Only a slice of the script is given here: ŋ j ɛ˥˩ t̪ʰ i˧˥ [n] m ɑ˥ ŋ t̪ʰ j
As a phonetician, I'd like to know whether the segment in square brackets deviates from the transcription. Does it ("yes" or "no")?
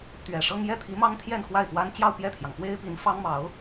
yes